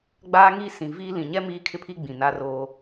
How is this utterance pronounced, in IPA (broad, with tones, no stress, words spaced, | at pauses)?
ɡ͡baː˦ŋi˦ sĩ˨viː˦ lĩ˨ɲɛ˦ miː˦kʰɪ˦pʰi˦ ɡ͡bĩ˨ na˦roː˦